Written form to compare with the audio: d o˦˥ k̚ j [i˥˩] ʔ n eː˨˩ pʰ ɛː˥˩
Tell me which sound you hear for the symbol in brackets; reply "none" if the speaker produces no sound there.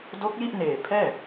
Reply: i˥˩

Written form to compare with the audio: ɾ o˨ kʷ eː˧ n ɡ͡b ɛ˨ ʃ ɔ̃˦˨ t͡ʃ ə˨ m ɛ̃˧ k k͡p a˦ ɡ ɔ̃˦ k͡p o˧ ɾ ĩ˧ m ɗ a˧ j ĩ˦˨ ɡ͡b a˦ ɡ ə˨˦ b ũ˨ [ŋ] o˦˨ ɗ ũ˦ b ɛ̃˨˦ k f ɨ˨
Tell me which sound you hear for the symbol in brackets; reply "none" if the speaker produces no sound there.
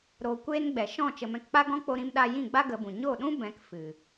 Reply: ɲ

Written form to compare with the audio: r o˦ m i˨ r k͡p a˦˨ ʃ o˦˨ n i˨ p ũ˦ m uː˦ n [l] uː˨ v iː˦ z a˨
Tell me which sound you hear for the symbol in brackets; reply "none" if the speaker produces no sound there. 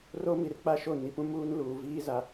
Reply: l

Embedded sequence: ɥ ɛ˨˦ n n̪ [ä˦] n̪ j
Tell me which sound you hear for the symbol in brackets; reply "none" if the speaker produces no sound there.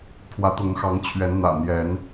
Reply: ä̰˨˩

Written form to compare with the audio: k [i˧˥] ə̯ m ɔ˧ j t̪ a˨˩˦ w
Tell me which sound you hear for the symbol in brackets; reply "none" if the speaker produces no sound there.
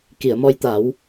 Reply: i˨˩˨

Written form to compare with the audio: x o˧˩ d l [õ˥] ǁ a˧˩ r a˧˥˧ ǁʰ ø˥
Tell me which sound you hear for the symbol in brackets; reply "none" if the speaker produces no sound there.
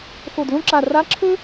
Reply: õ˥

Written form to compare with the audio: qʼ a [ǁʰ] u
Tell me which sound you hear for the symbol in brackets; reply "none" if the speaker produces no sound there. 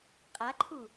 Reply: ǃʰ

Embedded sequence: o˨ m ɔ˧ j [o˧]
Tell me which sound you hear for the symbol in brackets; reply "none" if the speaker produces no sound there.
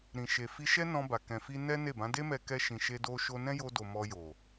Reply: o˨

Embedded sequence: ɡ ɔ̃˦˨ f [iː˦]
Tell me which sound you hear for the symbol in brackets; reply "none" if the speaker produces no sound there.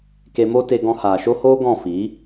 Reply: iː˨˦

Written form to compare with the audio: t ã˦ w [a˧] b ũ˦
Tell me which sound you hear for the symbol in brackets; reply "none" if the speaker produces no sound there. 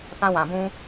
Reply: ã˧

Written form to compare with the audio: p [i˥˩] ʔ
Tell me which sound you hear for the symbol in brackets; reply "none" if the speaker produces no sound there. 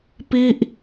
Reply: i˥˩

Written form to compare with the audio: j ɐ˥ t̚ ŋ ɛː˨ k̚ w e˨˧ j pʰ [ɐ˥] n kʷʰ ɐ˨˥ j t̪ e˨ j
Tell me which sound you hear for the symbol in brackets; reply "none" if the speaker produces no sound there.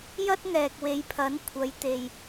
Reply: ɐ˨˥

